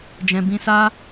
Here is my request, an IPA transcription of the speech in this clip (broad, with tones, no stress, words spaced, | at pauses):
d͡ʒɛ̃˧bĩ˦ sa˦